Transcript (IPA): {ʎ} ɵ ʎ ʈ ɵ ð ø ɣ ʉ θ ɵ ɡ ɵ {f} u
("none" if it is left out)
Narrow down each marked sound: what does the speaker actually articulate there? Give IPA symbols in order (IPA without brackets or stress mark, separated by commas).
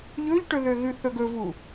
ʎ, v